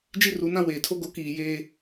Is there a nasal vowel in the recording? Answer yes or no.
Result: yes